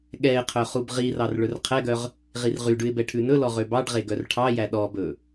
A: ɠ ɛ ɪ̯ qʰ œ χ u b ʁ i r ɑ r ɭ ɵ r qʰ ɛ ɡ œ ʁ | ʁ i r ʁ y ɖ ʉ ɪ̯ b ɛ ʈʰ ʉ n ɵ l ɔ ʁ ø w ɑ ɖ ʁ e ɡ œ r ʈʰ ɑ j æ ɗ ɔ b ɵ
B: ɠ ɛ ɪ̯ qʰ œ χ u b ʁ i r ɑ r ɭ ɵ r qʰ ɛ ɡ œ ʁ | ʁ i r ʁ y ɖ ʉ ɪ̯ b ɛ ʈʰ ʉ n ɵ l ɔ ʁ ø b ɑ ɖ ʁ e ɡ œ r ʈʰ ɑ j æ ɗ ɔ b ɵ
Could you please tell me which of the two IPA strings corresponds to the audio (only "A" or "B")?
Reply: B